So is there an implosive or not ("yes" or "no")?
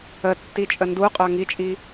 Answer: no